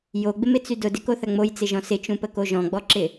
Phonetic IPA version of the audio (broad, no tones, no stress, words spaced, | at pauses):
joɡ͡bɪmɪt͡sy dʊdɪkoθɐ ŋ͡mojt͡sɪʒɔ̃ sɪt͡ʃũpəko ʒɔ̃ɡ͡bɔǁɪ